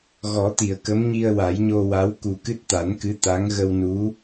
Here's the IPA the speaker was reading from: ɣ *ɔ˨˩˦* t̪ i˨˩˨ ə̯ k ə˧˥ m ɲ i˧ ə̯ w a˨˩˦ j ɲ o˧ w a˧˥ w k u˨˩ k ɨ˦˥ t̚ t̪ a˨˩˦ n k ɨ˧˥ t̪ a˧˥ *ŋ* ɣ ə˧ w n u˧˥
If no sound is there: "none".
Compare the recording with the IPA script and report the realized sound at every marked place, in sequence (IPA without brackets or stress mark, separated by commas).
ɔ˨˩˦, ŋ